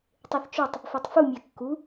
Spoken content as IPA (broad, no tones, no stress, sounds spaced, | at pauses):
tˤ e θ t͡ʃ o tˤ | f e tˤ f u mʲ æ kː u